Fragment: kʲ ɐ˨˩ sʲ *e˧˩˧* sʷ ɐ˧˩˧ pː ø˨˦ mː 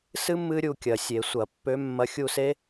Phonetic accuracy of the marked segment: correct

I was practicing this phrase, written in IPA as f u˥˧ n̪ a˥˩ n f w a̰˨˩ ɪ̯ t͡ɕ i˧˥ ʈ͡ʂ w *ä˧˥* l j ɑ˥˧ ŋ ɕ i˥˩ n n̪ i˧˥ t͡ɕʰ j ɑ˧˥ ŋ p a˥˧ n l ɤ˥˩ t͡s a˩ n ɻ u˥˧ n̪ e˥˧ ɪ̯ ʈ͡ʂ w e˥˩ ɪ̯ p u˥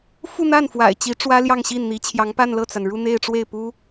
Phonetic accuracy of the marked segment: incorrect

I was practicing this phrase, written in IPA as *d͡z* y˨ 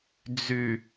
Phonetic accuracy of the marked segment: correct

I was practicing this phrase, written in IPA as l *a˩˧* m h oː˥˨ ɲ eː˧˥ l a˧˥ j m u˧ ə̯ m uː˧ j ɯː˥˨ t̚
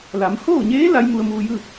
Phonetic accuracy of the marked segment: correct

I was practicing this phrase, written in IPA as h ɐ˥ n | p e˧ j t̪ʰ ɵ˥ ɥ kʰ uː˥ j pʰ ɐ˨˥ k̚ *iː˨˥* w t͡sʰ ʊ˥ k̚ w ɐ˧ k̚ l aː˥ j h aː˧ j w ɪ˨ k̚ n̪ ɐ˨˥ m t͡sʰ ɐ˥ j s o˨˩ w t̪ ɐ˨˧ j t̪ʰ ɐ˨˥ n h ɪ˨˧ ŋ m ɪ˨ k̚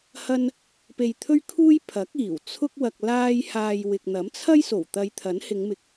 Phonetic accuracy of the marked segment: incorrect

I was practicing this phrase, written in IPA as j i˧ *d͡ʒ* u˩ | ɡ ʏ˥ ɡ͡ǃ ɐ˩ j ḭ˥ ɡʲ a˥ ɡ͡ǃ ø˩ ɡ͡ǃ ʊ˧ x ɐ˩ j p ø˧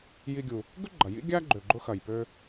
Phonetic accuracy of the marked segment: incorrect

